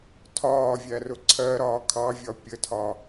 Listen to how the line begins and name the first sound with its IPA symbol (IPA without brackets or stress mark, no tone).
tʰ